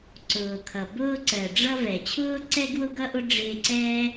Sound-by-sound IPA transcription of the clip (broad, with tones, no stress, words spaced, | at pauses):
ǀʊː˩kʰʌ˩ bʊː˧ǀɜ˩ɖ͡ʐʌ˧ vɛ˩t͡ɕʰʊː˥ǀɛ˥ ɡwʊ˥ɡʌ˥ʔʊ˥ ɖ͡ʐɪː˧ǀɛː˥